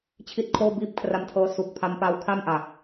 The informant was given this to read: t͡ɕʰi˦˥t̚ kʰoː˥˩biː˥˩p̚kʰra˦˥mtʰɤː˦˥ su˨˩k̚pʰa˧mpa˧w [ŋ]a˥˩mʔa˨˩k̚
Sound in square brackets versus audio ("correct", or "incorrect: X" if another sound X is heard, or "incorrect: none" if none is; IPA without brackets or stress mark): incorrect: kʰ